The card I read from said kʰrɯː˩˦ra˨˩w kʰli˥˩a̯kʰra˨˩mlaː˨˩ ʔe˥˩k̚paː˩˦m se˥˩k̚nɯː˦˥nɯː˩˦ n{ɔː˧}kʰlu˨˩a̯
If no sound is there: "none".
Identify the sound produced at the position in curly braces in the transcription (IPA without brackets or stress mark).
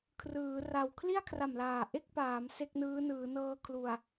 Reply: ɤː˧